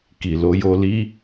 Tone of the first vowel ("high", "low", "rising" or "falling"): low